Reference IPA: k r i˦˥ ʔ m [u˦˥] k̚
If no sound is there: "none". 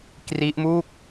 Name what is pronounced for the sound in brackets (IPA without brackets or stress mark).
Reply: u˥˩